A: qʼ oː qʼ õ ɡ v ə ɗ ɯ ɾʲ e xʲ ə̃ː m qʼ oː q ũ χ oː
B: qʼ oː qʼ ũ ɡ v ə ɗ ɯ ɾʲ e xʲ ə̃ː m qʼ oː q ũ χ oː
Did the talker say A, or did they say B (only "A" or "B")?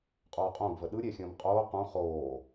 A